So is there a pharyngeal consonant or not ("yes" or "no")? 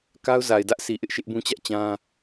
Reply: no